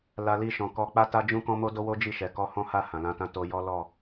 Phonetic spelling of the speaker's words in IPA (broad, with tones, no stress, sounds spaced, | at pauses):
l a˧ l i˧ ʃ ɔ̃˨ k ɔ˧ k͡p a˦ t a˦ d͡ʒ ũ˦ k ɔ̃˦ m o˦ d o˦ w o˦ d͡ʒ i˦˨ ʃ ɛ˨ k ɔ˧ h ɔ̃˦ h a˦˨ h ã˨ l ã˧ t ã˦ t o˧ j ɔ˦ l ɔ˦˨